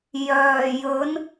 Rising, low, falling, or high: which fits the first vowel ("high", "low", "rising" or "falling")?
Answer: low